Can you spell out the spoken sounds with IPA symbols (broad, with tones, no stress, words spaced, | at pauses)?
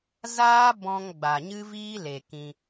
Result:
zaː˦bɔ̃˧ŋ ɡ͡ba˨ɲɨ˦viː˦le˨ kĩ˧